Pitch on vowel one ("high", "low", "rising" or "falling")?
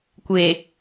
low